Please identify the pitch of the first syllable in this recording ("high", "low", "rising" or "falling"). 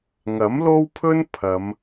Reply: rising